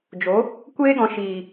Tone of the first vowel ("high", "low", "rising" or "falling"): rising